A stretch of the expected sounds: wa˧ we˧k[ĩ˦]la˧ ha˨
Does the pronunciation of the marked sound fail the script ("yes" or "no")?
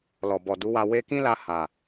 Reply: no